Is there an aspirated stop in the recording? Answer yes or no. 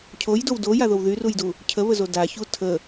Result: yes